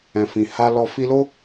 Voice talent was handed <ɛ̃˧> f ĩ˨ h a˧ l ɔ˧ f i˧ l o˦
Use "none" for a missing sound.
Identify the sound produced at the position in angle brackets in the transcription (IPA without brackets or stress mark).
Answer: ɛ̃˨